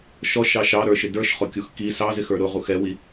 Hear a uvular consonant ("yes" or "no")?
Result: yes